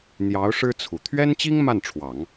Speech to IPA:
n̪ j ɑ˧˥ ʊ̯ ʂ ɻ̩˥ t͡sʰ u˨˩ t̪ʰ ɥ ɛ˥ n t͡ɕ i˥ ŋ m a˥˩ n ʈ͡ʂʰ w ɑ˨˩˦ ŋ

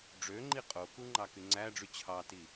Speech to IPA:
ɖ͡ʐ ø ŋ͡ǃ i qʼ o k u ŋ͡ǃ ɑ k y ŋ͡ǀ æ ɖ͡ʐ y t͡ɕʰ ɑ t i

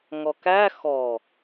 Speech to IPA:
ŋ ɔ k æ x ɔ

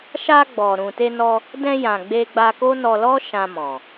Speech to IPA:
ʃ a˧ ɡ͡b ɔ˨ ɾ ũ˨ t e˧ n ɔ˧ | d ɛ̃˧ j ã˨ ɡ͡b e˧ ɡ͡b a˧ k o˦ n ɔ˧ l ɔ˦ ʃ ã˧ m ɔ̃˨

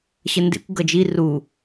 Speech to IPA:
ɕ ə n d ḛ kʷ ɡ ʌ d͡ʒ i r u

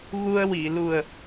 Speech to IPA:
ɣ u˧ ə̯ w i˨˩˨ l u˨˩ ə̯

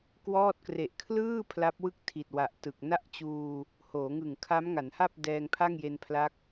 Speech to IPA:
k w ɔː˥˩ t̚ k r e˨˩ ʔ kʰ l ɯː˥˩ pʰ l a˦˥ p̚ w ɯ˥˩ k̚ tʰ i˨˩ t̚ w a˨˩ ʔ t ɯ˨˩ k̚ n a˥˩ ʔ t͡ɕ uː˧ | h oː˩˦ ŋ ɯ˨˩ ŋ kʰ a˦˥ m ŋ a˩˦ n h a˥˩ p̚ d ɛː˧ ŋ pʰ a˥˩ ŋ j e˧ n pʰ l a˦˥ k̚

